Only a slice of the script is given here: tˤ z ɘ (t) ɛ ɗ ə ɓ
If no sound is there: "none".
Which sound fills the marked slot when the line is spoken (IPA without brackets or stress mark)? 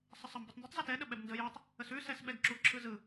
t